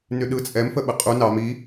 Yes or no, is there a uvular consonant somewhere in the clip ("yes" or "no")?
yes